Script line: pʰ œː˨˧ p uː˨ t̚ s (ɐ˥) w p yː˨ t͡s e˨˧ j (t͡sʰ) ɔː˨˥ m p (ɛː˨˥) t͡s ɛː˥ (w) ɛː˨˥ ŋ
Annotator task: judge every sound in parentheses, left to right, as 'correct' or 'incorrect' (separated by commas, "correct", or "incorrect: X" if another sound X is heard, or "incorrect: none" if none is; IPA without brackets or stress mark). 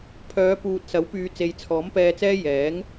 incorrect: ɐ˨˥, correct, incorrect: ɛː˧, incorrect: j